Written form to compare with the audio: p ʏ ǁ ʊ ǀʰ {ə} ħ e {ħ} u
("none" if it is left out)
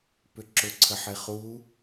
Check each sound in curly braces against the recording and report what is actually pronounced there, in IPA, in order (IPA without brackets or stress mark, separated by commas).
ə, χ